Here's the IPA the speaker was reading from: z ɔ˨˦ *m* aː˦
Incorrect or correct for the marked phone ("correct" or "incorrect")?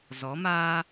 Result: correct